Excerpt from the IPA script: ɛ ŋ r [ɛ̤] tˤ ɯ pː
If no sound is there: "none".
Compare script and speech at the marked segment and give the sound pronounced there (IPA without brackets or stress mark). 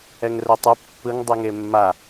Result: ɛ